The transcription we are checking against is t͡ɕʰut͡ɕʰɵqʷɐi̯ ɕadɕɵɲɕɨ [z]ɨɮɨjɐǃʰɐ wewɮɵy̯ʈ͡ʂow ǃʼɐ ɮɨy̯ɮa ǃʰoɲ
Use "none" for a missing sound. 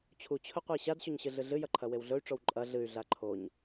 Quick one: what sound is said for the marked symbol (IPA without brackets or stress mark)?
ɮ